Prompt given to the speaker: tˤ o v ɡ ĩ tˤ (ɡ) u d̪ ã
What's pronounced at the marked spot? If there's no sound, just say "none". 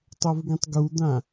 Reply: ɡ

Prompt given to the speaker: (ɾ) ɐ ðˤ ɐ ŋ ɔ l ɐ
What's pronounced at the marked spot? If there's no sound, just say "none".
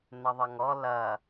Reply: n̪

